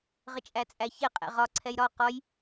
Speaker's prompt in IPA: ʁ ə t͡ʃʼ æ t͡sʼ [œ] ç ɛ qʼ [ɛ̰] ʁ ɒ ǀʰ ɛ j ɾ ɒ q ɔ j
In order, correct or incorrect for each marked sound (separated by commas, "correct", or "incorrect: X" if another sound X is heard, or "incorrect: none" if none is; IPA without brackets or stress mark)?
incorrect: æ, correct